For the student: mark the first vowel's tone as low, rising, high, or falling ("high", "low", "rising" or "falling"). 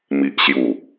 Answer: low